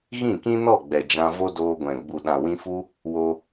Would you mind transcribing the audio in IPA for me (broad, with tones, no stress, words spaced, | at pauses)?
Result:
ɣĩ˦˨kĩ˦nɔ˦˨ ɡ͡bɛ˨ d͡ʒã˧vo˦doː˧ɡʷɛ̃˨ ɡ͡bu˨ɗã˨ wĩ˧fu˦ | wo˧